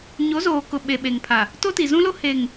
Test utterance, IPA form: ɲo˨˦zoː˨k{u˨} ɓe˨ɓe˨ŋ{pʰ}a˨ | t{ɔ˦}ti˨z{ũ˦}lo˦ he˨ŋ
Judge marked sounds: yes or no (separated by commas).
no, yes, no, yes